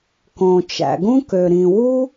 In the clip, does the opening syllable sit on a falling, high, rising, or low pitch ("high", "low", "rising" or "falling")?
low